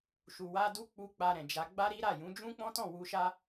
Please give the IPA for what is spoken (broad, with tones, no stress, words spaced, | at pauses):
ʃu˨wa˧du˦k͡pu˧ k͡pa˧ɾɛ̃˨d͡ʒa˧ ɡ͡ba˦ɾi˦ɾa˦˨jũ˨˦ d͡ʒũ˦k͡pɔ̃˦tɔ̃˦˨ wu˧ʃa˦